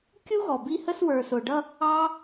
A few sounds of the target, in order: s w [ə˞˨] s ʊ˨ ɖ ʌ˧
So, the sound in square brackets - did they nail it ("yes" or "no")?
yes